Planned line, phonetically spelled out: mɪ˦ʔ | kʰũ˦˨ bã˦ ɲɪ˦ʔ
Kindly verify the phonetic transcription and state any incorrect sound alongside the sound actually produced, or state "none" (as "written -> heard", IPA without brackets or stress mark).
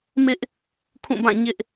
ã˦ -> ã˦˨